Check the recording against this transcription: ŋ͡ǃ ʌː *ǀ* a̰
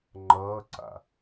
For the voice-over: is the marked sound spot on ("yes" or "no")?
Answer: yes